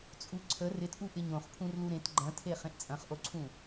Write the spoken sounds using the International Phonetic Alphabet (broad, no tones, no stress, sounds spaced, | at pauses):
t͡sʼ u ǀʰ ə r ɪ t ʔ u ʔ ɪ ɲ õ χ pʰ ũ r l u ɾ ẽ t ɡ͡ǃ ɐ̃ tʰ e χ ẽ ʔ t͡sʼ ɐ̃ χ ʔ o ǀʰ ũ